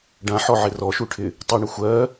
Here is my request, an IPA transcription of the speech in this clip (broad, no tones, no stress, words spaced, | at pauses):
ɖãħɔʕɪ rɔʃuʈʰɪ | tˤuɳə xʷɜ